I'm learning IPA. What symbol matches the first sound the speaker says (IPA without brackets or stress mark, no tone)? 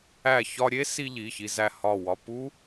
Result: æ